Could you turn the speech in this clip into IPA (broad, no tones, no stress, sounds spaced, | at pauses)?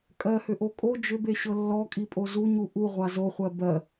kʼ ɜ h ʏ ʔ o kʼ o d͡ʒ ʏ b e ɕ ɤ lː ɔ kʼ i pʼ o z u ɲ u ʔ u ʁʷ a z o χʷ ɜ b ɜ